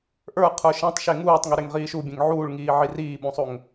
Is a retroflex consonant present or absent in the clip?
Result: present